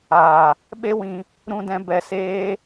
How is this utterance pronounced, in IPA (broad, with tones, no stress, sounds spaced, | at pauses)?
aː˨ | ɓ e˦ w ĩ˧ | ɾ ũ˧ d ɛ̃˧ b ɛ˧ s eː˦